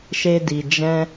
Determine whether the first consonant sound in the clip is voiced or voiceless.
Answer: voiceless